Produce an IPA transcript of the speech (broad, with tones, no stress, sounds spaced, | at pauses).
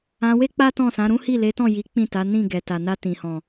ã˧ w e˦ k͡p a˦ t ɔ̃˦˨ s ã˨˦ ɾ ũ˦ h i˦˨ l e˨˦ t ɔ̃˦˨ j i˨˦ k͡p ĩ˦˨ t a˨˦ n ĩ˦˨ ɡ ɛ˨ t a˨ n a˧ t ĩ˨ h ɔ̃˨